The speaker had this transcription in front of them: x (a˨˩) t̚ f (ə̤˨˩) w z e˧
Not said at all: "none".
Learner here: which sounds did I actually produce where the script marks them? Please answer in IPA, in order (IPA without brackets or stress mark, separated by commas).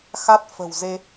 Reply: a˦˥, ə̤˨˩